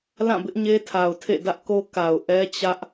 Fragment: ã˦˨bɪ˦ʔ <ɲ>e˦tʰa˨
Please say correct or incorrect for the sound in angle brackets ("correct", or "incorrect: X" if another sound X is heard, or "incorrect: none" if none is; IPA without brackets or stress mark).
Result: correct